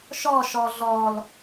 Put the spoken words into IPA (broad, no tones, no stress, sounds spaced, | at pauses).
ʃ ɔ ʃ ɔ ɮ ɔ l